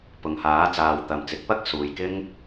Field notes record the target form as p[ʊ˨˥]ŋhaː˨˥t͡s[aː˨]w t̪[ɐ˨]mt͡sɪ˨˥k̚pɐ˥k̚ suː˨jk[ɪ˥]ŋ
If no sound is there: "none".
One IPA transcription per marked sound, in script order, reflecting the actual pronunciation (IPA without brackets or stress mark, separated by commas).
ʊ˨, aː˨, ɐ˨, ɪ˥